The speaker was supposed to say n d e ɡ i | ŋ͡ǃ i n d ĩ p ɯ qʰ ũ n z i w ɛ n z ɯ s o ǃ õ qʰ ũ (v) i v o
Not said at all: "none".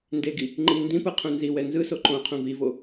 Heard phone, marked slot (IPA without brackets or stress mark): v